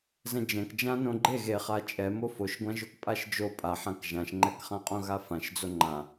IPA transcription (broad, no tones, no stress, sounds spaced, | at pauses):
z ɛ̃ d͡ʒ ɛ̃ k d͡ʒ ã n õ ɡ͡ǃ e ɣ e χ a t͡ʃʼ ɛ m o f o ʃ ɡʷ ã ʒ o k pʼ a ʃ d͡ʒ o pʼ a ħ ã k ʒ ã ʃ ŋ͡ǃ ɛ k χ ã qʼ õ ɣ a f ã ʃ d͡z o ŋ͡ǃ ã